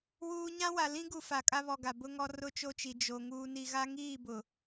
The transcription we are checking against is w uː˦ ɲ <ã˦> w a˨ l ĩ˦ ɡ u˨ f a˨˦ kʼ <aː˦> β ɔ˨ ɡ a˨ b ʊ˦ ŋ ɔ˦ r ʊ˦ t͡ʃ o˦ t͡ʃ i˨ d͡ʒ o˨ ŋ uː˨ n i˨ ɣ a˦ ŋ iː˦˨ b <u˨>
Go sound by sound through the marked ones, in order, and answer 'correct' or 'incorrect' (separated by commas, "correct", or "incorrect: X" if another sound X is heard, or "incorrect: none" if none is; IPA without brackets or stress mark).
correct, incorrect: a˦, incorrect: ʊ˨